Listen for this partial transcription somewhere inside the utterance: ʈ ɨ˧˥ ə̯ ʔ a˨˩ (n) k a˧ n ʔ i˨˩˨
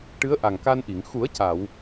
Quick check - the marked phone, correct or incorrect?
incorrect: ŋ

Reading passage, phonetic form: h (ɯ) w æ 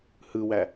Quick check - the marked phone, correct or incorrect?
correct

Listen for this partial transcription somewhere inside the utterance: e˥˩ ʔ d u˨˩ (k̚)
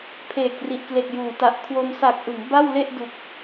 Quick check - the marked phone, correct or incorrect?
correct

